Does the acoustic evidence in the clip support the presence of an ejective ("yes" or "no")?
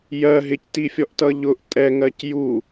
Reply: yes